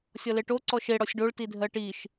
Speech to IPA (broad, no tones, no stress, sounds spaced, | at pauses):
sʲ ɔ l e ʈ o ǀ ɔ ʃ e ɽ ɔ sʲ ɖ o ɭ t i dʱ ɜ ʈ i ʃ